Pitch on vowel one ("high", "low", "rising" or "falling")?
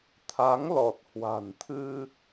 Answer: rising